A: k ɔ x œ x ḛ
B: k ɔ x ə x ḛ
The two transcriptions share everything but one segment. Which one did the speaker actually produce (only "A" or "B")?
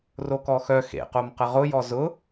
A